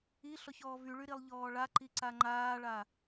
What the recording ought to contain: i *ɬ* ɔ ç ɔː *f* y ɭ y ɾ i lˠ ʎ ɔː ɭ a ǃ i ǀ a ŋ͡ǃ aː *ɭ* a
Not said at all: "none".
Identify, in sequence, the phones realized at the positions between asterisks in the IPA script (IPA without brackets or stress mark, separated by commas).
ɬ, v, ɭ